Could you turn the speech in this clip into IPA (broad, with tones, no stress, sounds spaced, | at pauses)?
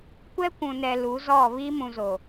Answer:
kʷ ɛ˦ kʷ ũ˨ n ɛ˨ l u˨˦ z ɔ˦˨ β i˦ m ũ˨ z o˨